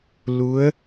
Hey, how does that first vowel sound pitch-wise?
rising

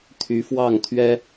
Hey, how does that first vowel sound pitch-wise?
rising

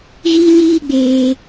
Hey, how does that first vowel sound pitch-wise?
high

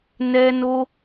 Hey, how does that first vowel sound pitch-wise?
high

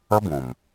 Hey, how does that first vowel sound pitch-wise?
high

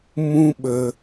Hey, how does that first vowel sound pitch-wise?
high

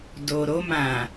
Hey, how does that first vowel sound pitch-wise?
low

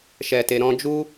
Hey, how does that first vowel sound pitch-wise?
low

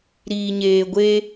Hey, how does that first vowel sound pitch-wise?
low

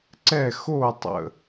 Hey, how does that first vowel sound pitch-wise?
falling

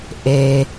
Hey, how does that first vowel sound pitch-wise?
low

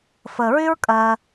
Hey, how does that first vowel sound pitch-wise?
low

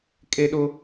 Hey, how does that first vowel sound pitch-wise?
high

